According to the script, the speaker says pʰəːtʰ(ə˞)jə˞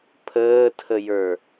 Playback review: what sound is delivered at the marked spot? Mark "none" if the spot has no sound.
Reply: ə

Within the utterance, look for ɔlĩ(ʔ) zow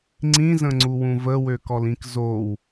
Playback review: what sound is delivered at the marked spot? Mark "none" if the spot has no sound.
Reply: k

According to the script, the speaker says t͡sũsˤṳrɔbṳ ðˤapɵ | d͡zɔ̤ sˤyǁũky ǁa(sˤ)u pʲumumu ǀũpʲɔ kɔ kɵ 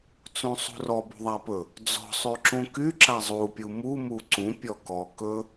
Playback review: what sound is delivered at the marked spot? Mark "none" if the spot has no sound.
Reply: zˤ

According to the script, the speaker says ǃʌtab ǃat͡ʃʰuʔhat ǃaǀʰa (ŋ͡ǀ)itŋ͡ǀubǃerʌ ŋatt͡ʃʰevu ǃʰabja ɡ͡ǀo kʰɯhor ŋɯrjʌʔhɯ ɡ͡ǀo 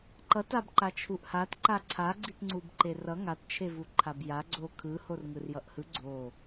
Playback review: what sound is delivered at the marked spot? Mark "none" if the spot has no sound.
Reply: ɡ͡ǀ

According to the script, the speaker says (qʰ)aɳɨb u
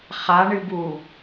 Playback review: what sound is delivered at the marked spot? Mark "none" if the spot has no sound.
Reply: χ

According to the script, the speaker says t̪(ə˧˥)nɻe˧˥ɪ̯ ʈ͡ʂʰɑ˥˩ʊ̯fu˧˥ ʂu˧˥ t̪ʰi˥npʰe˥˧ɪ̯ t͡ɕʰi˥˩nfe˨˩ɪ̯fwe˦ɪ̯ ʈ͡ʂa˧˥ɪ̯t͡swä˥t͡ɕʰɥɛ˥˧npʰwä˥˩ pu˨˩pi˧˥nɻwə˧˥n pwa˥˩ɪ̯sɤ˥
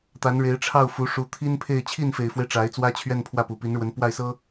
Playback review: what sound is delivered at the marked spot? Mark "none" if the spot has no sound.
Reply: a˧˥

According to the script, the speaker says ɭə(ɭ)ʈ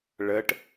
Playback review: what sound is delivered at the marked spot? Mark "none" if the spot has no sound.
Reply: none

